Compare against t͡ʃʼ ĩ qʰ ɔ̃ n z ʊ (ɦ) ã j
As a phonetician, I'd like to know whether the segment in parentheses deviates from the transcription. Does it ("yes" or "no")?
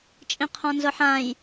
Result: yes